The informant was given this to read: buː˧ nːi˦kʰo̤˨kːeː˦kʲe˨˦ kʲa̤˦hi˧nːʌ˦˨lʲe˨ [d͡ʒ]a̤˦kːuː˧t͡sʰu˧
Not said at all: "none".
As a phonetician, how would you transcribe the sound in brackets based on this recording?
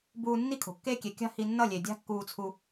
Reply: dʲ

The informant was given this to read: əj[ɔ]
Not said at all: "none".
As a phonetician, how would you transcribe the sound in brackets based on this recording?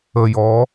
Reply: ɔ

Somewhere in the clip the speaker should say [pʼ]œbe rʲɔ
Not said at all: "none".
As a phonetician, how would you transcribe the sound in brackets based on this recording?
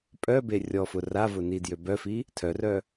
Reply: pʼ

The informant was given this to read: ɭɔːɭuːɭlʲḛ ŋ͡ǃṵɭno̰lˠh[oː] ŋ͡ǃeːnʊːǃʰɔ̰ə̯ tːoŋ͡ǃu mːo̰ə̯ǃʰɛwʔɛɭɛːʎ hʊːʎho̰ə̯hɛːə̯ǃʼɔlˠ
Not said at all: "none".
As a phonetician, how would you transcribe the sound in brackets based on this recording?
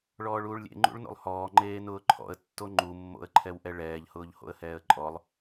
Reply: ɔː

